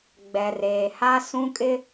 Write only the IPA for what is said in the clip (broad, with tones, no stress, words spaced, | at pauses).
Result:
ɡ͡bɛ˨reː˨ha˦ sũ˦kʼɪ˦